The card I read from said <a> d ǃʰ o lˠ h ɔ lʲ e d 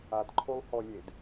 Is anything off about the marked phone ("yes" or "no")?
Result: no